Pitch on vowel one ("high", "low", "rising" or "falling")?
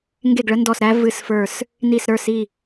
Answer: falling